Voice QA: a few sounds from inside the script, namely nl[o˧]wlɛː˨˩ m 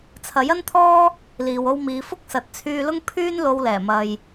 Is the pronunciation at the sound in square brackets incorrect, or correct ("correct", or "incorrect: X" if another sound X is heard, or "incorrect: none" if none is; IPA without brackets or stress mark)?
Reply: correct